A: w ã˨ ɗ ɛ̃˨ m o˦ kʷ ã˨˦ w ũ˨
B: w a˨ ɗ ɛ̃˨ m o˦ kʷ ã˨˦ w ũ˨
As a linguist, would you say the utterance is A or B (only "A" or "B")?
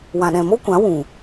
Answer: A